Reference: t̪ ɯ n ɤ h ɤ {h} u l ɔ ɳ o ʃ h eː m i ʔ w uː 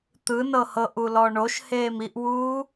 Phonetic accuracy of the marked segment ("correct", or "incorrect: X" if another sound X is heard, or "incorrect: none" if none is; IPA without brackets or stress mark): incorrect: ʔ